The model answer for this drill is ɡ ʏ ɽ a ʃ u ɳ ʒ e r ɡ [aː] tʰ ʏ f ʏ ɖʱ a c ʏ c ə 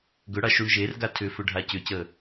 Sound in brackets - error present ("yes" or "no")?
yes